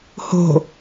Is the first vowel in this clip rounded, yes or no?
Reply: yes